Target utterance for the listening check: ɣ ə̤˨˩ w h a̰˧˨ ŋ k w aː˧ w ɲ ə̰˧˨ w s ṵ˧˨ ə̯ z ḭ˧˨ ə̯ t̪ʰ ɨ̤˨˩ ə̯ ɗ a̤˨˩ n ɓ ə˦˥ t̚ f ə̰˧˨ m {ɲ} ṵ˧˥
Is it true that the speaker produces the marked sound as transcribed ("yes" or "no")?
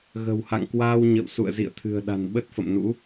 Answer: no